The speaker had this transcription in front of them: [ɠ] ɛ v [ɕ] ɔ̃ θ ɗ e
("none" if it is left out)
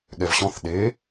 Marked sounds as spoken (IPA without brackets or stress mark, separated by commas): ɠ, ɕ